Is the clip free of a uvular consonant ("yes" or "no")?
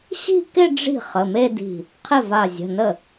no